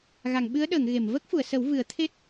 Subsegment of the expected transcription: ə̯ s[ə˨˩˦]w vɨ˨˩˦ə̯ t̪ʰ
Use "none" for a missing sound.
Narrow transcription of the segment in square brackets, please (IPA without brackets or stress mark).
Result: ə˨˩˦